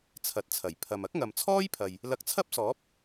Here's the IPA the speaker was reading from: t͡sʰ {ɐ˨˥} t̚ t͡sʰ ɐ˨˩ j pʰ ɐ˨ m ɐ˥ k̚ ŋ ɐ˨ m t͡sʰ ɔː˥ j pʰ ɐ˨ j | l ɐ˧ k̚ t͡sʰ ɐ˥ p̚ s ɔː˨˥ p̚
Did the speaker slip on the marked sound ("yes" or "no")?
no